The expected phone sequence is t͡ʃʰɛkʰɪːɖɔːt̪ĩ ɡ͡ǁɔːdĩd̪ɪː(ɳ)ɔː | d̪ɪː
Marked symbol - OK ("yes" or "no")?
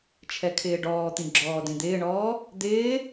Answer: yes